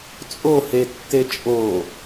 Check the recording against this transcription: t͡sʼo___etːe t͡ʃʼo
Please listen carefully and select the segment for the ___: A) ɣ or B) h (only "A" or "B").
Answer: B